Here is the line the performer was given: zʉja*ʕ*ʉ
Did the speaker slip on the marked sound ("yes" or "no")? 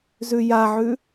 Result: no